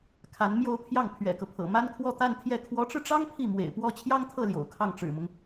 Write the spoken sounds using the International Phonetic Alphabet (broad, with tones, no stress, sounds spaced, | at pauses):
kʰ a˧˥ n m j o˥˧ ʊ̯ pʰ j ɑ˥˩ ŋ pʰ ɥ ɛ̰˨˩ k ɤ˦ pʰ ɤ̰˨˩ m a˥ n kʰ w ɔ˥˧ t̪ a˥˧ n t̪ʰ j ɛ˥˩ kʰ w ɔ˧˥ ʈ͡ʂ ɻ̩˧ ʈ͡ʂ ɑ˥ ŋ pʰ i˥˩ m w ḛ˨˩ ɪ̯ p w ɔ˥ t͡ɕʰ j ɑ˥ ŋ t̪ʰ ɤ˥˩ l j o̰˨˩ ʊ̯ kʰ ɑ˥˩ ŋ ʈ͡ʂ ɻ̩˨˩ m ʊ˦ ŋ